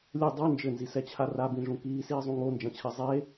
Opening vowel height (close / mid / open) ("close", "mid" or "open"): mid